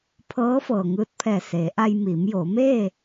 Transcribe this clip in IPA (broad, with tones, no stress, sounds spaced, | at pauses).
pʰ ɤː˧˥ f ɤː˩ ŋ ɯː˧ t̚ pʰ ɛː˧˩ s eː˩˧ ʔ a˧ j m iː˩˧ m j oː˩˧ m eː˥˨